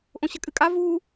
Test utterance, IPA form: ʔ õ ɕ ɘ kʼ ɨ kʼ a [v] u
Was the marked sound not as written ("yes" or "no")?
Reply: no